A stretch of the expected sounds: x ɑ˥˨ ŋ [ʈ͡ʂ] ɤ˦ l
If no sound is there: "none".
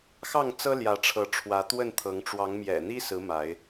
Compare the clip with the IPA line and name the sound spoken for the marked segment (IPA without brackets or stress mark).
t͡s